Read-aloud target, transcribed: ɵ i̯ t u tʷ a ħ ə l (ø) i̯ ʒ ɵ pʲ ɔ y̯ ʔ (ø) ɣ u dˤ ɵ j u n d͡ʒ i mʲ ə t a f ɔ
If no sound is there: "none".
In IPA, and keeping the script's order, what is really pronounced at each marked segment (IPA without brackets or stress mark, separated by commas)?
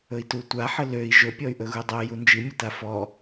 ø, ɵ